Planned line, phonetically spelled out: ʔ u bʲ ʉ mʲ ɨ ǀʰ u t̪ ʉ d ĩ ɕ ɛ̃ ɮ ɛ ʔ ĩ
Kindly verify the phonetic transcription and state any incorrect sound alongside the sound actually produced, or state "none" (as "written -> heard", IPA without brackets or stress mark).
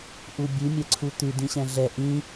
ɨ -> ɛ